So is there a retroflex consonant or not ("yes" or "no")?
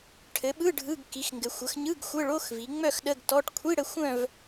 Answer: yes